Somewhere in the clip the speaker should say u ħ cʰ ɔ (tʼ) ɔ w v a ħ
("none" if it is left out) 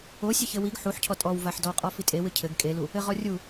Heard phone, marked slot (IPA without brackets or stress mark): tʼ